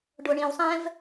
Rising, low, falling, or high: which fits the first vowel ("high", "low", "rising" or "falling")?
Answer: low